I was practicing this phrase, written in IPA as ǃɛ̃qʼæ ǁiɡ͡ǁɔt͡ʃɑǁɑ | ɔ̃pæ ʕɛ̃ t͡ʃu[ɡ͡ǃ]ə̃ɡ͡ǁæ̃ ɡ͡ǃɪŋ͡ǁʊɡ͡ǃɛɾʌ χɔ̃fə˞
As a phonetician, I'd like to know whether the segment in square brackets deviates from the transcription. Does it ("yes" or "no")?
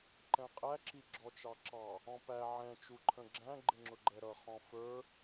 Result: yes